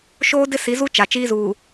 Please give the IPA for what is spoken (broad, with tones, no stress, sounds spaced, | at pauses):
ʃ oː˦ d ɪ˦ s i˨˦ z u˦ t͡ʃ a˨ t͡ʃ iː˦ z uː˨